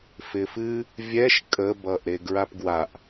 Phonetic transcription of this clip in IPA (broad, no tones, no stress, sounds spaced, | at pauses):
f ɪː f ɨ | vʲ ɛ ʃ kʼ ə b ʌː ʔ ɾ e ɡ ɹ a p ɡ w a ʔ